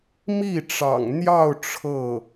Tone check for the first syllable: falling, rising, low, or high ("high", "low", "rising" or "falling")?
falling